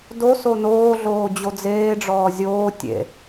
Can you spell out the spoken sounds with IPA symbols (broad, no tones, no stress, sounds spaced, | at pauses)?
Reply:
d o s o n oː ɮ oː d͡ʑ o d͡z eː ɖ͡ʐ ɔː zʲ oː tʲ ḛ